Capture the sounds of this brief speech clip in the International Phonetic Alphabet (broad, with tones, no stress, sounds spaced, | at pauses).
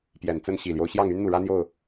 p j ɛ˨˩ n t͡s ə˦ n ɕ i˨˩ l j o˦ ʊ̯ ɕ j ɑ˥˨ ŋ y˦ n n̪ u˨ ɻ ä˦ n̪ j o˥˨ ʊ̯